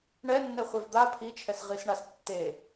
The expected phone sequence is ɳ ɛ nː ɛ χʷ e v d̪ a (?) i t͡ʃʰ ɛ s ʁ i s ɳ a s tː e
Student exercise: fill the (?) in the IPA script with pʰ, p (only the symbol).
pʰ